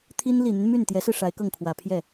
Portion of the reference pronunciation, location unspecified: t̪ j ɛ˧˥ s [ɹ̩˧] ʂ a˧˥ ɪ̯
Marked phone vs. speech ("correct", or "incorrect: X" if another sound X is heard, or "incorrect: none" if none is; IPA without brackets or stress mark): correct